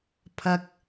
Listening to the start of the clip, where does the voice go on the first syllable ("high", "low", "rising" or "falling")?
low